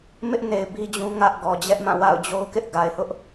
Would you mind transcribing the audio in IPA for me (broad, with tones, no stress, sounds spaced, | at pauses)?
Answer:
m ɪ˦ ʔ n e˨ ɪ̯ b i˦ d͡ʑ ũ˦ ŋ ä˦ ʔ ɡ ɔ˨ d͡ʑ ɛ˦ ʔ m ã˦˨ w a̰˦˨ ʊ̯ d͡ʑ o˦ ʊ̯ k ɪ˦ ʔ ɡ a˨ ɪ̯ h ʊ˦ ʔ